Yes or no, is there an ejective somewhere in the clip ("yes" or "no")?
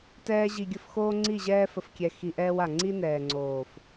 no